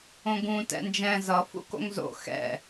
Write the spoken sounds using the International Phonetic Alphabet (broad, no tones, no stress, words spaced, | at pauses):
õɡũ tɛ̰nd͡ʒɛ̃ zʌ fṵko̰ŋzo̰ xɛ̰